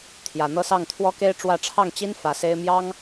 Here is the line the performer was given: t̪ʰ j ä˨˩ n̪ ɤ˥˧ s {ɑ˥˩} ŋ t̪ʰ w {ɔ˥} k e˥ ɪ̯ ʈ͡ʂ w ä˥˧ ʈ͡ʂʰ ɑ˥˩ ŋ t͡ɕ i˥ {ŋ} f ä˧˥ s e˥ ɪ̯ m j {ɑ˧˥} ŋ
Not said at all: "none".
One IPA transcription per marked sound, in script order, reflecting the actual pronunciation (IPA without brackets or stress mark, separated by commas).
ɑ˥˩, ɔ˥, n, ɑ˥